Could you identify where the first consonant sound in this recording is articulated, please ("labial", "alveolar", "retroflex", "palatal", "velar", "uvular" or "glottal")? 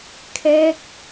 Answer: velar